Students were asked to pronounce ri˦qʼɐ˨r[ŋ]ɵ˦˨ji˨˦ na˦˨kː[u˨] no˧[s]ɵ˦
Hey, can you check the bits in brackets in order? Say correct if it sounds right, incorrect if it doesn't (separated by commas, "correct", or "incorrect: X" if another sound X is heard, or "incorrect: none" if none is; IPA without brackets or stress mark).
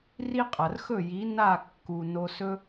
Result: incorrect: x, correct, correct